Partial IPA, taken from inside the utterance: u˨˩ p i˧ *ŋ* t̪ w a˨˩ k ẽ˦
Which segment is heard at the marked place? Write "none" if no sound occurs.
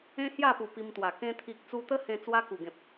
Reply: m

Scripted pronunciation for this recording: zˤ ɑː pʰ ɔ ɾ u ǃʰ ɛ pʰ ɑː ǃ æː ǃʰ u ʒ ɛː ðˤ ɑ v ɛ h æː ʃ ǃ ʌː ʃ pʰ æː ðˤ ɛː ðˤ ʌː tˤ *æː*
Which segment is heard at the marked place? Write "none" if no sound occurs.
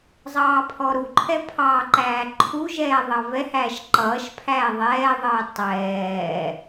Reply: ɛː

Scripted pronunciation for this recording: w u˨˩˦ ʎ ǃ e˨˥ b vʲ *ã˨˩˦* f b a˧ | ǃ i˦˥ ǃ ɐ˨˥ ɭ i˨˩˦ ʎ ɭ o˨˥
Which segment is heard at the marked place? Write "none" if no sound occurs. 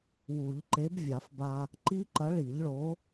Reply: a˨˩˦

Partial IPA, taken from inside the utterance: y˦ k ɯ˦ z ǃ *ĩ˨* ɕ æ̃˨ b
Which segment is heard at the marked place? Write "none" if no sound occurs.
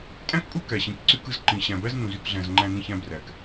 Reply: ĩ˨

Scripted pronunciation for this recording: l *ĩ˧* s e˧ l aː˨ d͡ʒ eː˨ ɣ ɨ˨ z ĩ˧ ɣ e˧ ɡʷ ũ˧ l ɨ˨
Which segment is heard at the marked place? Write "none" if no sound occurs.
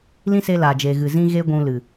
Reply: ĩ˦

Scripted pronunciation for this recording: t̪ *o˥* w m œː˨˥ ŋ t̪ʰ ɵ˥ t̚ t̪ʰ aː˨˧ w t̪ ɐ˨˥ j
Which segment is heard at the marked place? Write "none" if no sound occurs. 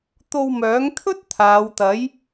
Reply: o˧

